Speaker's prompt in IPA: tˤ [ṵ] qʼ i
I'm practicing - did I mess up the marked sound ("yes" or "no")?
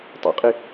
no